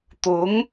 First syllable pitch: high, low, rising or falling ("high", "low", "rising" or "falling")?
rising